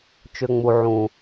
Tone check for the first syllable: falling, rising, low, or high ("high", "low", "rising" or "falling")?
low